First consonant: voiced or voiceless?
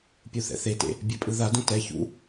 voiceless